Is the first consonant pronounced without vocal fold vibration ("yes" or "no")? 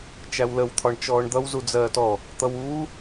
yes